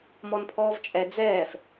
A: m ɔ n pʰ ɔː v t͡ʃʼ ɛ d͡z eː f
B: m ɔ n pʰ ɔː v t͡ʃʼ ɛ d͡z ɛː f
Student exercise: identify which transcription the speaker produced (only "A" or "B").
B